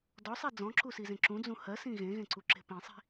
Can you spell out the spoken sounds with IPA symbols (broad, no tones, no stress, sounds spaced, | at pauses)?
d ɔ sˤ i d͡z ɔ̃ ǁ u s i z ẽ ǁ ũ d͡z ũ h ɜ s ĩ ɣ ẽ ɣ ẽ ǀ u ǁ e̤ p ĩ sˤ i̤